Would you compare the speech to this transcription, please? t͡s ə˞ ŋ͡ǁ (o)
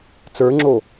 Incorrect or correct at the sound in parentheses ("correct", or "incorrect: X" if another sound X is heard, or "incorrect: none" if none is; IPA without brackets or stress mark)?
correct